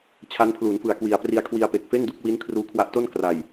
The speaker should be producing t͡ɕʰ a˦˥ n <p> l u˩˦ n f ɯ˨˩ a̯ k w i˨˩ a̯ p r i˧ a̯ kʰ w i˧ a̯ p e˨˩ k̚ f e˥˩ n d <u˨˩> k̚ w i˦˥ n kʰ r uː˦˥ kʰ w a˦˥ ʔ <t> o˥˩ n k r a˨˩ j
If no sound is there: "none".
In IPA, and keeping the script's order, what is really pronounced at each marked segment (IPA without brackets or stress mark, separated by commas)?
pʰ, u˦˥, t